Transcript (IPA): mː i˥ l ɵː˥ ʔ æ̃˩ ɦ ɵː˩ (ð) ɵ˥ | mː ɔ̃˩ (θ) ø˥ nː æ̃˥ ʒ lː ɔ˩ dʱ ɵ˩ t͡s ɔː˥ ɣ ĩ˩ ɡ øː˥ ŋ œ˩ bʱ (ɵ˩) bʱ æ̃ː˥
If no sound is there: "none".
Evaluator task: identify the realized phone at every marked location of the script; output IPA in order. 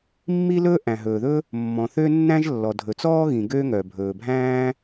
ð, θ, ɵː˩

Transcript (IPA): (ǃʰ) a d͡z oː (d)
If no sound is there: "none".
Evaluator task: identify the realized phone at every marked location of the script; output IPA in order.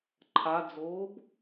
ǃʰ, b

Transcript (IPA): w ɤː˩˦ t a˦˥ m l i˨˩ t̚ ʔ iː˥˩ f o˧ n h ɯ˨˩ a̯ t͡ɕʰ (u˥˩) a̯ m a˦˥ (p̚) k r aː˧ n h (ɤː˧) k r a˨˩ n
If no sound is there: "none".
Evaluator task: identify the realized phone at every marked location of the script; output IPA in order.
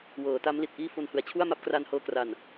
u˥˩, p̚, ɤː˧

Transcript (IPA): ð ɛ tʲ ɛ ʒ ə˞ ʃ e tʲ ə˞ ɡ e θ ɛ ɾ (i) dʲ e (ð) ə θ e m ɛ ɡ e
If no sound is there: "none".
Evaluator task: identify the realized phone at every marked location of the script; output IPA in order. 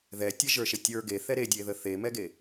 e, ð

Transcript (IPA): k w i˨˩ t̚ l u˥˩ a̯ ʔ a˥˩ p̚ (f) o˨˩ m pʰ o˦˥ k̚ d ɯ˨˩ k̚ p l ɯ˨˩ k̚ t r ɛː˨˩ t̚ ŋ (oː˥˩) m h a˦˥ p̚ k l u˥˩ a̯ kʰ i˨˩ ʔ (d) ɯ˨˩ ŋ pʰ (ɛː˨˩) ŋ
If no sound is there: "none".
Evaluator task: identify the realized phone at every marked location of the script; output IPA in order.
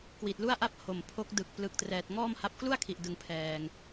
h, ɔː˥˩, d, ɛː˨˩

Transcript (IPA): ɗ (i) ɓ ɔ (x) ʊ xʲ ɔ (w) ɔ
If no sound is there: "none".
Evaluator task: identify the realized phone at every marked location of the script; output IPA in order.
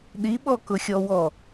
i, k, w

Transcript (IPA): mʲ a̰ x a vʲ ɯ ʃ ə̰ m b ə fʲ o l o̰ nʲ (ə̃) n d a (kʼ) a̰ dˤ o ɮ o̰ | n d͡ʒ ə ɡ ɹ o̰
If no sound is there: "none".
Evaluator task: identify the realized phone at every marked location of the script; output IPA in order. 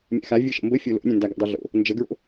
ə̃, ɡ

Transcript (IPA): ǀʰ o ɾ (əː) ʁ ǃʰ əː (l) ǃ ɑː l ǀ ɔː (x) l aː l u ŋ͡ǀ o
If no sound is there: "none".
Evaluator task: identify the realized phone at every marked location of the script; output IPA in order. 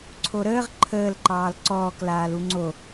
əː, l, k

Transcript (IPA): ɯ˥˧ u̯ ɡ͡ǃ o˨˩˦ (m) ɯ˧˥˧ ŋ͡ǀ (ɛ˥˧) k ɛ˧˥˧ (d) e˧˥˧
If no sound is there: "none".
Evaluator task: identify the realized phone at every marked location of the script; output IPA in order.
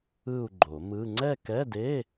m, ɛ˥˧, d

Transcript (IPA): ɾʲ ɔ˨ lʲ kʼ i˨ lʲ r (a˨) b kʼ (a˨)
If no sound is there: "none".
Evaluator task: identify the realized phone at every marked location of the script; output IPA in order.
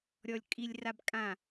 a˨, ã˨

